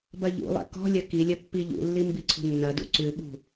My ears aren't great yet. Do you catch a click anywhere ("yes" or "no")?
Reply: yes